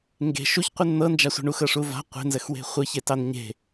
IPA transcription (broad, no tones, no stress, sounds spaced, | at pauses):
ŋ ɡ e̤ ʃ u ç qʷ ɨ n n̪ ɤ n d͡ʒ a sʷ e̤ ɳ u x ɤ ʂ u v a̤ qʷ e̤ n z ə x w e̤ χʷ ɨ ç e t ɑ n ɲ e̤